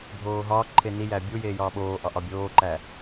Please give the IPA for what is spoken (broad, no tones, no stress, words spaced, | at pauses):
bʱoːɦɒːǃʰe nijæ bʲujeː jɒːɓoːʔɒ ʔɒbʲoːǃæ